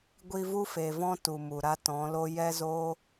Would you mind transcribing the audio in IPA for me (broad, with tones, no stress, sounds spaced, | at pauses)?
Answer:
ɡʷ i˧ v u˦ f e˨ v ɔ̃˦ t u˨ m u˨ ɾ a˦ t ɔ̃˨˦ l o˦ j ɛ˦ z o˦